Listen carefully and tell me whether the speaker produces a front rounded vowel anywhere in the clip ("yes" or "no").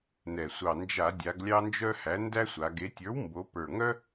yes